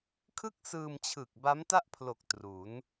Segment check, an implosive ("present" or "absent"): absent